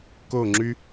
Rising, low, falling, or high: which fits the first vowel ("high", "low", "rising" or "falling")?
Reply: falling